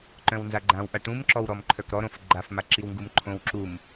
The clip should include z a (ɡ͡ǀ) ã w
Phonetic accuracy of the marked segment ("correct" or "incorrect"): incorrect